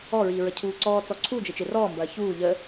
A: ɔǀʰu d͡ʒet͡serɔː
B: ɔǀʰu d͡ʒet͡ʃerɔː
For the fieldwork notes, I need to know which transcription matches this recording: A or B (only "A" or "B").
B